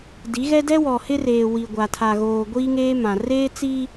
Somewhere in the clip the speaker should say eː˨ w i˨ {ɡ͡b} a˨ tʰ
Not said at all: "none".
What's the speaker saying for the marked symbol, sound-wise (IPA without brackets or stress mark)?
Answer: ɡʷ